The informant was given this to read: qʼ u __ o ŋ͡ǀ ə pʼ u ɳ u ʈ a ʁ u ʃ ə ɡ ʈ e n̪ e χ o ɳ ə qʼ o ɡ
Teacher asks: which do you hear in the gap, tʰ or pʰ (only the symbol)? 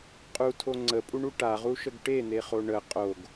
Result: tʰ